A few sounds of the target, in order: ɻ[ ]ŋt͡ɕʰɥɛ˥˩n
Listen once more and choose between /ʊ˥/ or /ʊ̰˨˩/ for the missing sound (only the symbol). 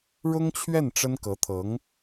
ʊ˥